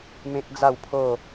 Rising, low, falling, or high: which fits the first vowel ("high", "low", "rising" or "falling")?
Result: high